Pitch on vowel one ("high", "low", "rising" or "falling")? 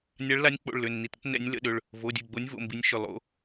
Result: rising